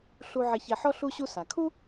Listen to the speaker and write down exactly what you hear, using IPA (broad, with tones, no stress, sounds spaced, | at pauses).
ɬ u˧ ʕ ɛ˧ ç ɛ˧ ħ ɔ˥ ɬ u˥ ɕ u˥ s a˩ kʰ u˥